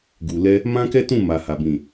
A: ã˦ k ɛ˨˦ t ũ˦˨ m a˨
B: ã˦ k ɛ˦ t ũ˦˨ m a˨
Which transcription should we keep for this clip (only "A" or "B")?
B